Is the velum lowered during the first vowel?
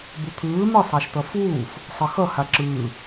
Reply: no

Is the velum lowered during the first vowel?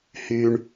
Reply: no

